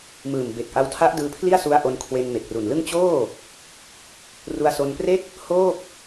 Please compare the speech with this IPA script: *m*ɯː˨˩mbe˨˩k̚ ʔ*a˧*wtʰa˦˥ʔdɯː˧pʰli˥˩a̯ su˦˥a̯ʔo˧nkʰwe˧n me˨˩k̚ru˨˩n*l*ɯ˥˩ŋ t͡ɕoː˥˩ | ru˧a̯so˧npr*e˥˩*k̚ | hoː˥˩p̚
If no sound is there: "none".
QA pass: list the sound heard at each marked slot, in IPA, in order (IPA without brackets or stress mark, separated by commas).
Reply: m, a˧, l, e˥˩